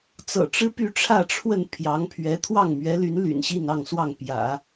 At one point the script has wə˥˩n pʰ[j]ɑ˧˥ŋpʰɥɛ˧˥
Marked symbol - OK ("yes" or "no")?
yes